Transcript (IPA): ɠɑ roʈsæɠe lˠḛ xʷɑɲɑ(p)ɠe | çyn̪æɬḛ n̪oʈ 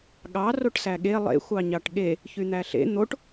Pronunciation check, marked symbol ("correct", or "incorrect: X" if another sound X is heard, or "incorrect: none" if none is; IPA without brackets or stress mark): incorrect: ʈ